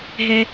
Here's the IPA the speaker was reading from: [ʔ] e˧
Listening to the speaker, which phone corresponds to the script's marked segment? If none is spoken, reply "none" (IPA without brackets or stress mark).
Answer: ɦ